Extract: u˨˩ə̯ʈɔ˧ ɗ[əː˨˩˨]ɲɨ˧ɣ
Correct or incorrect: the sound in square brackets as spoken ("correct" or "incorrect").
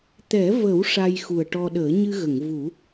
incorrect